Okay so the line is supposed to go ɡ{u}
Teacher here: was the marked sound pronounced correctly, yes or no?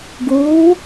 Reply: no